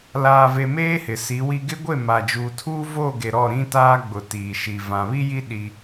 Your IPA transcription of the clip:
laː˨ve˨ meː˦hɪ˨si˨˦wi˦ ɡɪ˦ɡʷe˦˨ ma˨d͡ʒuː˨tʰuː˦ vo˦˨ɡe˨ ɾɔ˦˨ɾĩ˦taː˦ɡ͡bʊ˨ tiː˨ʃi˨ vã˨βi˦ji˦ ɗi˦

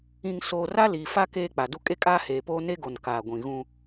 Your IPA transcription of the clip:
ĩ˨ŋsoː˨r a˦liː˨fa˦ keː˦k͡pa˨du˦ kʼe˦kʼaː˦heː˨poː˦ ne˦ɡo˨n kaː˨ɡʷĩ˨ ɣũ˦

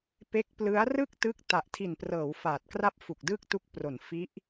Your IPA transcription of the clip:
pe˦˥k̚plɯ˦˥a̯ rɯ˥˩k̚tɯ˦˥k̚ ta˨˩ʔtʰi˨˩nprɤː˩˦w faː˨˩t̚kra˥˩p̚ fu˨˩k̚dɯː˥˩k̚tu˦˥k̚ pro˩˦n fi˦˥ʔ

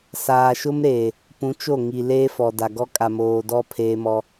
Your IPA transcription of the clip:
saː˨ʃʊ˦mɾeː˨ | pũ˨˦t͡ʃo˦˨ŋi˨ leː˦fɔ˨da˨ɡɔ˦ kʼa˨moː˨dɔ˦ pʰeː˦mɔ˦

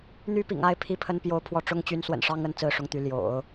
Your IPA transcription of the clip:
n̪y˥pḭ˨˩ŋ a˥˩ɪ̯ pʰi˥pʰə˥npjo˥˧ʊ̯ pʰwɔ˥˩ʈ͡ʂʊ˥ŋt͡ɕy˧˥n swə̰˨˩nʂɑ˥ŋə˧˥n t͡sɹ̩˥˩ʂʊ˥ŋt̪y˧˥ ljo̰˨˩˦ʊ̯

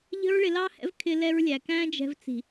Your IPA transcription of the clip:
ʎə̤˦ɹɭɪ˧lɑ˦hɛ̰˦v kʰɪ˧lɛ˧ɹlʲæ˨ kæ̃˦d͡ʒɛ̤˧v t͡si̤˨

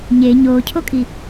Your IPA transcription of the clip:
ɲe ɲoːcʰokʼi

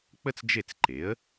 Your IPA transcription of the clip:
k͡pə˥t͡sd͡ʒe˥˩t͡s ǃe˩˥ə̯

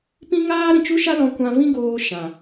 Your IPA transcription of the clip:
pĩ˦ŋaː˦ ɾĩ˨t͡ʃu˦ʃa˦ lɔ̃˧kʷã˧vĩ˦ ɡoː˧ ʃã˨

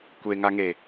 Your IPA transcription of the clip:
kʷeŋaŋe

